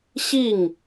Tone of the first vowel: falling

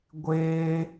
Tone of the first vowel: high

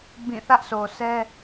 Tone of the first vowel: falling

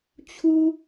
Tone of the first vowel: high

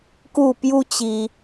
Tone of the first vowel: falling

